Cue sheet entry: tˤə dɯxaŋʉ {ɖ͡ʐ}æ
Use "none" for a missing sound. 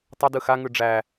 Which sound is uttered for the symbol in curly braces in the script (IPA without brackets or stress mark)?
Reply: ɖ͡ʐ